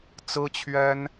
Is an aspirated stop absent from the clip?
no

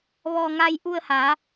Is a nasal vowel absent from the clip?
yes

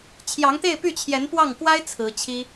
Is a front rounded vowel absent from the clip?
no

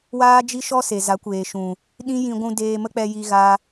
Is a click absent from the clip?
yes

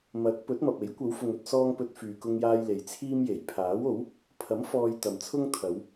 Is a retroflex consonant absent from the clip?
yes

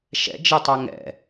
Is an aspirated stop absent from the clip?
yes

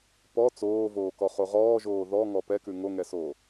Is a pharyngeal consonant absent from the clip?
yes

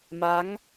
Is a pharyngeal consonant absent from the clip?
yes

